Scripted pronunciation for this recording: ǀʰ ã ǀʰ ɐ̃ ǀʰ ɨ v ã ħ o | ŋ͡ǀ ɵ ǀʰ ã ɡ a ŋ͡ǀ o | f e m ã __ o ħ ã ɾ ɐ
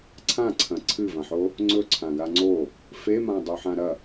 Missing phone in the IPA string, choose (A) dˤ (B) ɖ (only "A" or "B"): A